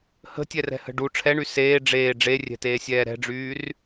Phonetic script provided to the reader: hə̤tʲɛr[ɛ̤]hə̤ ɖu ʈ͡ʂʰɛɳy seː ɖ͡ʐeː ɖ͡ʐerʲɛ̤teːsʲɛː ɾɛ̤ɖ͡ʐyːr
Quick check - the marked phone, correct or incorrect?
correct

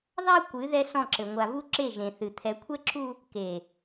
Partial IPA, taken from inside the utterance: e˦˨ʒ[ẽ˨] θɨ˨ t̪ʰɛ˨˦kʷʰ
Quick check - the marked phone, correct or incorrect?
correct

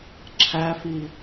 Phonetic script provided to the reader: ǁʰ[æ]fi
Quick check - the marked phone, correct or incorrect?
correct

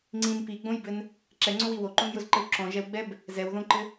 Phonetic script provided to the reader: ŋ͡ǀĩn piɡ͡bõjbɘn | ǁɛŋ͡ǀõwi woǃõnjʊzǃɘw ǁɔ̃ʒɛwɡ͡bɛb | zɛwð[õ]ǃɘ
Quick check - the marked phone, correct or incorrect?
correct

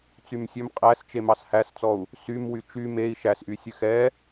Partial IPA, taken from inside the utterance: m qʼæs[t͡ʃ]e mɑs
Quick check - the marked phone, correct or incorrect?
correct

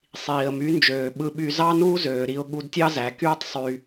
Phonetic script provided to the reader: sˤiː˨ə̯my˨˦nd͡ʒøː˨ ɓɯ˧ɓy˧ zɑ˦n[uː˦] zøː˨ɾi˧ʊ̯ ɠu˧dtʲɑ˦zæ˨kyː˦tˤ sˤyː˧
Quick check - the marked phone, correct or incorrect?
correct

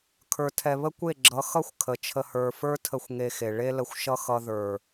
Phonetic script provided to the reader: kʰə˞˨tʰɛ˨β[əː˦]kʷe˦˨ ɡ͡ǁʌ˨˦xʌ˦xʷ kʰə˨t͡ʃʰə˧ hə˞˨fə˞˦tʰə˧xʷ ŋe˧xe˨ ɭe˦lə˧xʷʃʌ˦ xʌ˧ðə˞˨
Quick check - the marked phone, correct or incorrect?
incorrect: ə˦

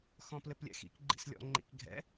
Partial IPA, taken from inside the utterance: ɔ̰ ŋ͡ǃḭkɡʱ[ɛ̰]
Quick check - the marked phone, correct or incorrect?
correct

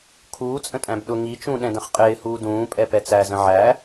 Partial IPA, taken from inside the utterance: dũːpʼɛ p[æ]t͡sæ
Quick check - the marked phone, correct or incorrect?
incorrect: ɛ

